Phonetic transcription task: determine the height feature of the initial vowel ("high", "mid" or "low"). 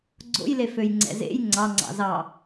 mid